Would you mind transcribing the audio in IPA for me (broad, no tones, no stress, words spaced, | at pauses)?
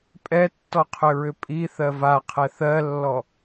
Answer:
pʼɛtːɔqʰʏɹʏ pʼiθɜ vaqʰɛ θɜlːɔ